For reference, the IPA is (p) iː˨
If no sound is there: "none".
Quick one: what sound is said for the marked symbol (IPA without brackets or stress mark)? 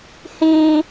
h